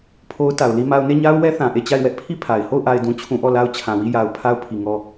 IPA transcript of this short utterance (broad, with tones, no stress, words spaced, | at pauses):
pʰo˦ʊ̯ta˨ʊ̯li˦ma˦ʊ̯ ne˦˨ɲa˦ʊ̯ wɛ˦ θã˨ʔe˦˨t͡ɕa˦˨ɪ̯ wɛ˦ʔpʰi˦˨ pʰa˨ɪ̯ ho˦˨ʊ̯ʔa˨ɪ̯dũ˨t͡ɕʰũ˨ ʔɔ˦˨la˦ʊ̯t͡ɕʰã˨wi˦˨ ja˨ʊ̯ pʰa˦ʊ̯pʰi˨ ŋɔ˦˨